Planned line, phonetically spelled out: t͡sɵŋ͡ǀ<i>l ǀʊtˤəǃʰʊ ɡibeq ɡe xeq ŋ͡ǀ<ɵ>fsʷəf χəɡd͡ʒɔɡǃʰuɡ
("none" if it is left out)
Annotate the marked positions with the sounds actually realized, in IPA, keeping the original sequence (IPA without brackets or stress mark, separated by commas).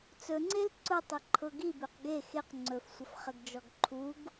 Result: e, ɵ